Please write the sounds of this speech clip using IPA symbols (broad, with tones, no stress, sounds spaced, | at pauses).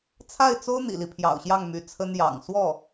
t͡sʰ a˥˩ ɪ̯ t͡s o˥ ʊ̯ n̪ ḭ˨˩ l i˦ pʰ j ɑ̰˨˩ ʊ̯ ɕ j ɑ˥˩ ŋ m y˧˥ t͡sʰ ə˥ n j ɑ̰˨˩ ŋ s w ɔ˥˩